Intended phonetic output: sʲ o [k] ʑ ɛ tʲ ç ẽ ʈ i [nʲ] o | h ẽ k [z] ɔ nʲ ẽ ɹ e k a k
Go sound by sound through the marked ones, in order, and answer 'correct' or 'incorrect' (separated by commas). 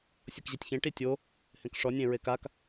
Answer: correct, incorrect, incorrect